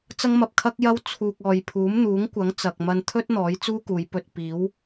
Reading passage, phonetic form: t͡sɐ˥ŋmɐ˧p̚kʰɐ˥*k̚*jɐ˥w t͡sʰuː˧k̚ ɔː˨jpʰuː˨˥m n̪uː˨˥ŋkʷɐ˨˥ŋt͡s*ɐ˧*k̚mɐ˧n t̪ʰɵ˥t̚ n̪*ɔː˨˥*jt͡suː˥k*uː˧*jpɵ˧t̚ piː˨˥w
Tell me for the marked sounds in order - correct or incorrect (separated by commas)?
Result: correct, incorrect, correct, incorrect